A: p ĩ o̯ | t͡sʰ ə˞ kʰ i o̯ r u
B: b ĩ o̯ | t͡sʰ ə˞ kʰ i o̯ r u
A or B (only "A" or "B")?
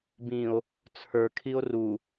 B